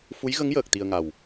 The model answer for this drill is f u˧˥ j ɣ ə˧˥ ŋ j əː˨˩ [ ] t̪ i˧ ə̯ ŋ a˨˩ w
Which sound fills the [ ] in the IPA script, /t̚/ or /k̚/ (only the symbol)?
k̚